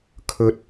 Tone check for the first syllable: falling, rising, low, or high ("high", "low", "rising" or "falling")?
rising